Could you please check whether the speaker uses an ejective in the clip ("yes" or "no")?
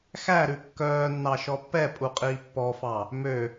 yes